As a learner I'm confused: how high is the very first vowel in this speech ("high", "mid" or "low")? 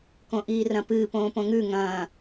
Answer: mid